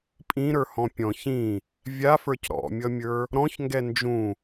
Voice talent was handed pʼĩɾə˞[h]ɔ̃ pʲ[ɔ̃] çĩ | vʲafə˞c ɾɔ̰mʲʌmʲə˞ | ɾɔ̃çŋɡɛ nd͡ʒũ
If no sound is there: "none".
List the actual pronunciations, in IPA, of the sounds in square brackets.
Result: h, ɔ̃

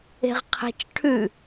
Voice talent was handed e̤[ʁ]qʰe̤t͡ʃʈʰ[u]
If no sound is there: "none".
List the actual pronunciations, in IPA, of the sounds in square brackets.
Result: ʁ, ʉ

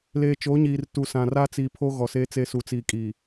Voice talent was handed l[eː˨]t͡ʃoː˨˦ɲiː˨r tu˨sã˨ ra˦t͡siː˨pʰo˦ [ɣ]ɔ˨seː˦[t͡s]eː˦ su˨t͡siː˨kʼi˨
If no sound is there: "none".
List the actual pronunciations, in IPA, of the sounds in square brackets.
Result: eː˨, ɣ, t͡s

